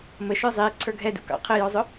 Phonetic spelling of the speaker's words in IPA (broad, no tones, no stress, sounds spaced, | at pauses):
m ə ʃ ə˞ zˤ ɪː ǀʰ ə˞ ɡʱ ɛ d ṵ k ɑ̰ qʰ ɪ j ɔ zˤ ʊ